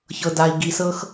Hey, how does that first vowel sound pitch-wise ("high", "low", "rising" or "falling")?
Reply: low